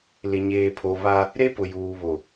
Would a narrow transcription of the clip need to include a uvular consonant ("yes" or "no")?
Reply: no